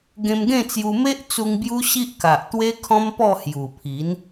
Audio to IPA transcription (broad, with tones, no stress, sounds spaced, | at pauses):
ɡ ẽ˧ m ɡ ẽ˥˧ t͡s j u˧ m e˦ ʔ t͡s u˧ ŋ b j u˦ ɕ i˦ ʔ k a˨ ʔ t̪ w e˦ kʰ ɔ̃˦ m p ɔ˥˧ h j u˨˩ pʰ i˨˦ n